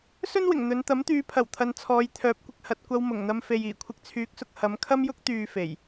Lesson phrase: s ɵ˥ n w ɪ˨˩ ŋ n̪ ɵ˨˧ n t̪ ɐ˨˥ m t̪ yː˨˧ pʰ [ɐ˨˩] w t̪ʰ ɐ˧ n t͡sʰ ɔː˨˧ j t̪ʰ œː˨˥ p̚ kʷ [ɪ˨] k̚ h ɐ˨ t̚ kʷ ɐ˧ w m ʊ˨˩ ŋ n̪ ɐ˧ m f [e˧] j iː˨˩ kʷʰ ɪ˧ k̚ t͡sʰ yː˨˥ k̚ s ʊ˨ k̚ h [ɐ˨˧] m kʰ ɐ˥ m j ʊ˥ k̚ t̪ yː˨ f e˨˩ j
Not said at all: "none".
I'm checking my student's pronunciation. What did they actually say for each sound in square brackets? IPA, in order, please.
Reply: ɐ˨˩, ɪ˨, e˨, ɐ˨˧

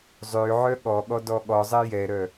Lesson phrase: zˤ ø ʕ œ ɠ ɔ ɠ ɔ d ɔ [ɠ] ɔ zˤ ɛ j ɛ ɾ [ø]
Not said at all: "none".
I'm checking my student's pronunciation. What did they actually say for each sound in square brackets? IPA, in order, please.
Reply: ɠ, œ

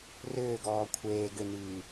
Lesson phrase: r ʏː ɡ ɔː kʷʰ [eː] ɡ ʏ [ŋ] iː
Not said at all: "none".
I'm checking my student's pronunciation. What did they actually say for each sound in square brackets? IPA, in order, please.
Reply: eː, n

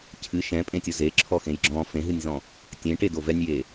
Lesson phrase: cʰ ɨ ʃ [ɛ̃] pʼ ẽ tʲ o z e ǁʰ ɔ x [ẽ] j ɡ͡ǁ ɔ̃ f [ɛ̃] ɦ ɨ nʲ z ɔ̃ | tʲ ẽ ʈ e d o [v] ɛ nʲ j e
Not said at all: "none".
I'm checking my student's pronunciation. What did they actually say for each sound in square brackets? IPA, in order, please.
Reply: ɛ̃, ẽ, ẽ, v

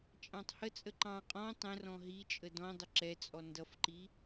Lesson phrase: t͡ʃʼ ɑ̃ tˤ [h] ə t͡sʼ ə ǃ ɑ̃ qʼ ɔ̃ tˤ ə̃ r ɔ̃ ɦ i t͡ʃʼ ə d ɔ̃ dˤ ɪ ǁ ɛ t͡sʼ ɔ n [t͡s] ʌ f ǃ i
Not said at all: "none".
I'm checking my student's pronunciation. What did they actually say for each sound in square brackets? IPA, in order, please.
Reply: h, d

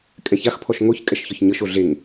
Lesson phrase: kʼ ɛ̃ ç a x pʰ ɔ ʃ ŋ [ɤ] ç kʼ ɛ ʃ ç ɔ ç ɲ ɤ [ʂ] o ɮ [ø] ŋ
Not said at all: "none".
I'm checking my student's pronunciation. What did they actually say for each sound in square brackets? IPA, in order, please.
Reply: o, ʃ, e

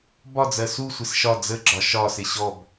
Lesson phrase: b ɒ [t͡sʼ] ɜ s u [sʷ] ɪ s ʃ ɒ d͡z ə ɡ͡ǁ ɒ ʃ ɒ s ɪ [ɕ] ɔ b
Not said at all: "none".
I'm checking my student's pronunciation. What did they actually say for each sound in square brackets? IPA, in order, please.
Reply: d͡z, sʷ, ɕ

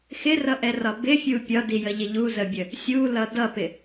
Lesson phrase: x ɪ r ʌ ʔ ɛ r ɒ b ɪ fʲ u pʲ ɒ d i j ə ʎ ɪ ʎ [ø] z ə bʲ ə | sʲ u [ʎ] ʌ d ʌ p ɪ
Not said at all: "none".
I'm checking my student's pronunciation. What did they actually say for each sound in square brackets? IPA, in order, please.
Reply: u, l

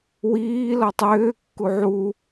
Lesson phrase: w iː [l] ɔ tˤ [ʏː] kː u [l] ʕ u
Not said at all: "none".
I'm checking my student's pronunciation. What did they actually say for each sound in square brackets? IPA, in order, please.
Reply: l, ʏː, none

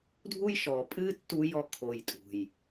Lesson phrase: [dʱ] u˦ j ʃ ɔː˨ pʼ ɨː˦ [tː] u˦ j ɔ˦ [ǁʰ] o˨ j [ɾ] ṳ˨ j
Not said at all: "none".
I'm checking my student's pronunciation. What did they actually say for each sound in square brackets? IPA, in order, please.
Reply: dʱ, tː, kʰ, tʼ

